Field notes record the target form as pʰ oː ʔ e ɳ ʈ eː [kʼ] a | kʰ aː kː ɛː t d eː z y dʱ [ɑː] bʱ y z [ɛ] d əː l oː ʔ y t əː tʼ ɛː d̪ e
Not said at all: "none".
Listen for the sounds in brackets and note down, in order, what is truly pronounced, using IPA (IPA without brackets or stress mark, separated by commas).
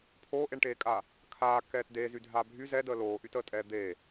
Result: kʼ, aː, ɛ